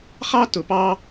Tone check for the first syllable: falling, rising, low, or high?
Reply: high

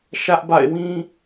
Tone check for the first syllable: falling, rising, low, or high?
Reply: high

